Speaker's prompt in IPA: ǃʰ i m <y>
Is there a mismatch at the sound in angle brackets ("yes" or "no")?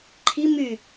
no